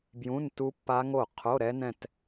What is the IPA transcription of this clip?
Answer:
bjũ˧˥˧n tu˦˥pːa˦˥ŋo˥˩ qʰo˧˥˧ɾɛ˦˥nɛ̃˥˧t

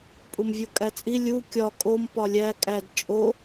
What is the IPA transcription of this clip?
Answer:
pʼumvʲokʼæt͡sʼi lʲu kʲɒ kʼom pɒlʲæ kʼæd t͡ʃʼo

